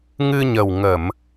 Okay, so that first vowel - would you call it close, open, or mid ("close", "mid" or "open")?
close